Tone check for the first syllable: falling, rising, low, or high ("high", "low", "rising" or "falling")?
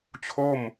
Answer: falling